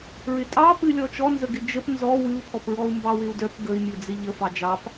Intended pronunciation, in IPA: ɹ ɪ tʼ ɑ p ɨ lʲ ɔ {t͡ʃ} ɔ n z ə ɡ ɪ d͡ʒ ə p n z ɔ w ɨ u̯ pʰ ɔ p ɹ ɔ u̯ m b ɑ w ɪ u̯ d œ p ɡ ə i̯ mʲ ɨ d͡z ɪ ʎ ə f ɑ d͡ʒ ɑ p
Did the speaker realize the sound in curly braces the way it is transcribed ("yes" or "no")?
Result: yes